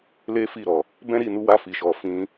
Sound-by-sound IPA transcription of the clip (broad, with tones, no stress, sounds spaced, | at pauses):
l e˦ f i˦˨ ɾ ɔ˨ | b ɛ̃˦ ɾ i˦˨ n u˨˦ w a˧ f i˨ ʃ ɔ˨ f ĩ˧